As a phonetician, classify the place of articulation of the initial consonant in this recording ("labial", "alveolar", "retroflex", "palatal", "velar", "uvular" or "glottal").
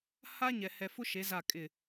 glottal